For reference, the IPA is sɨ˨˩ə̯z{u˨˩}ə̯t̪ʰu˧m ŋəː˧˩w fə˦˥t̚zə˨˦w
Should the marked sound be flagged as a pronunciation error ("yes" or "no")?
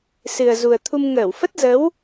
no